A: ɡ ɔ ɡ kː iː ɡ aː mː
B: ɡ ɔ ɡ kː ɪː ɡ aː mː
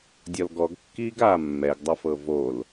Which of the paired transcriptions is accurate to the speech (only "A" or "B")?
A